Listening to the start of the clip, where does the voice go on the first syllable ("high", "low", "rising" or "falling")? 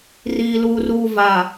low